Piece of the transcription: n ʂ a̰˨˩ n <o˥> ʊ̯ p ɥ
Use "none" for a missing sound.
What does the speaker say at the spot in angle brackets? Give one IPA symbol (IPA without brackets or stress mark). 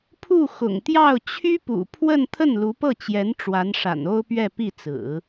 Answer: o˥